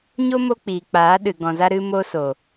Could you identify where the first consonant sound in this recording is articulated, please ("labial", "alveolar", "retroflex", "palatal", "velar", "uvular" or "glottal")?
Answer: palatal